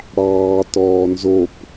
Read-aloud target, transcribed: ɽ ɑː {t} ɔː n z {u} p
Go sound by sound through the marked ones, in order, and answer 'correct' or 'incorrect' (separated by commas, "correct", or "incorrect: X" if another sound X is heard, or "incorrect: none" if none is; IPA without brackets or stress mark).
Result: correct, incorrect: o